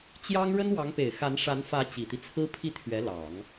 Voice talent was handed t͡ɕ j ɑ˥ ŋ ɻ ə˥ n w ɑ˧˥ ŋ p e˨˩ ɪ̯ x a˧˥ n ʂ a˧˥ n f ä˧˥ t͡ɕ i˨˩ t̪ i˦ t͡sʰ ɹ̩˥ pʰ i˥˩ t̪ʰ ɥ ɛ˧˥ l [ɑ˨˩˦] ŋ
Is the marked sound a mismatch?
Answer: no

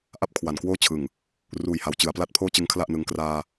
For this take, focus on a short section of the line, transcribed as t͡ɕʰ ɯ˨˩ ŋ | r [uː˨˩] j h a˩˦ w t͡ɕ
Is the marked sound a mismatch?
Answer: no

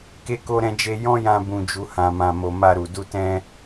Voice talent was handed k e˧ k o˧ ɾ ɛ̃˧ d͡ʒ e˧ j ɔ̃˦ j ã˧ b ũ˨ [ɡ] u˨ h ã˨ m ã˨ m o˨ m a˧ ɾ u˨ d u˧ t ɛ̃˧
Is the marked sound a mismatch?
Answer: yes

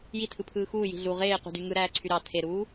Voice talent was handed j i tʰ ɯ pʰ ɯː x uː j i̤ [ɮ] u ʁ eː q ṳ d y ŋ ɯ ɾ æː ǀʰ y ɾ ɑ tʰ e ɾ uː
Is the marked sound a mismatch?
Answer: no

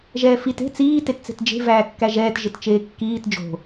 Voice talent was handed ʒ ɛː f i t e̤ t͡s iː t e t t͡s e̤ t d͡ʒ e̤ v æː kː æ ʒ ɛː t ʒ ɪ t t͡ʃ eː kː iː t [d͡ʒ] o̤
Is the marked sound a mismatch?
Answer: no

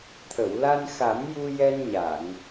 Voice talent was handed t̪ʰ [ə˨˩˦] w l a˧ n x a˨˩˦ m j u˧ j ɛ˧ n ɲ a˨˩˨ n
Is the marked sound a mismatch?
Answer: yes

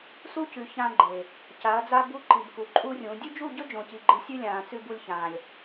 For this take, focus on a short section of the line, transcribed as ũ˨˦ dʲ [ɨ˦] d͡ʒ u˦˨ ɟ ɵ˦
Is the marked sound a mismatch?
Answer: yes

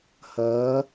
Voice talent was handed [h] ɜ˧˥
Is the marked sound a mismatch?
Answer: no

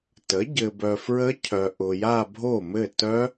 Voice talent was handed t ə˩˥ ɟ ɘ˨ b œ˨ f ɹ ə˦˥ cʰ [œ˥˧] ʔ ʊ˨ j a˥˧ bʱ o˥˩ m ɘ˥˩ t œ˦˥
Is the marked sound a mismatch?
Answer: yes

